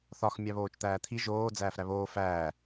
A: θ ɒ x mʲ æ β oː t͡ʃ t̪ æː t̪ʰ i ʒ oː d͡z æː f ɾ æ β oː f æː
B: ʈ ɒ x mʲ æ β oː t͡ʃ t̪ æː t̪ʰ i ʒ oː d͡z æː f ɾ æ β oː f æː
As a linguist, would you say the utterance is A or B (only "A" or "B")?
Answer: A